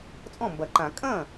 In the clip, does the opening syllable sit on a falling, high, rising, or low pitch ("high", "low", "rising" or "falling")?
falling